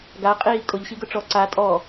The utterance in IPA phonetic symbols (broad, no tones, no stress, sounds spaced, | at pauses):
ɡ a qʼ iː kʼ ʊ ʎ ɕ i ɡ ʊ ʈ͡ʂ ɔ ǀ a tʼ ɔ